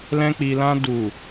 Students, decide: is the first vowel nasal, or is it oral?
nasal